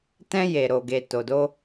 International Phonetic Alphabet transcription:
t ɛ̃˧ j e˨ ɾ o˨ ɡ e˨ t o˨ d o˧

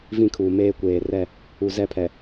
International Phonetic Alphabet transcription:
v ĩ˦˨ kʰ uː˨ m eː˦ kʷ eː˨ r ɛ˦˨ | u˨ z ɛ˦ pʰ ɛ˨

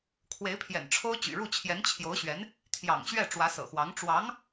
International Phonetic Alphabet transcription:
kʰ w e˧˥ ɪ̯ pʰ j ɛ̰˨˩ n ʈ͡ʂʰ o˥ ʊ̯ t͡ɕ y̰˨˩ ɻ u˥˩ t͡ɕʰ j ɛ˧˥ n t͡ɕʰ j o˧˥ ʊ̯ ɕ ɥ ɛ˧˥ n | t̪ʰ j ɑ̰˨˩ ŋ ɕ ɥ ɛ˥˩ ʈ͡ʂ w ä˧˥ s ɤ̰˨˩ x w ɑ˧˥ ŋ ʈ͡ʂ w ɑ˧˥ ŋ

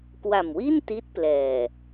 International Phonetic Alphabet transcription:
k w a˨˩ m w i˥˩ n t i˦˥ t̚ p l ɛː˨˩

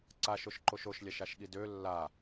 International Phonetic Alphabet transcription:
ǀ a ʃ o ʃ ǃ o ʃ o ʃ lʲ a ʃ a ʃ ɠ i d ø lː a

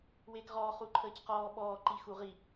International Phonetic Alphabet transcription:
w eː k ʁ ɔː χ u ǃʰ əː c q ɔː ɓ ɔː ǃ i x u ʁ i

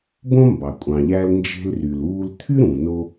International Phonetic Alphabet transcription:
b õ˥ m b ɑ˩ kʷʼ ɑ̃˩ ʎ æ˧ l n d͡ʒ e̤˧ l r y˩ l uː˧ l t̪ʰ y˥ ɾ ũ˩ n o˧

